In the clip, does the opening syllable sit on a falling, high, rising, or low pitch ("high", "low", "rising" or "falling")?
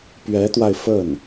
rising